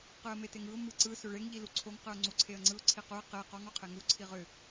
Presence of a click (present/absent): present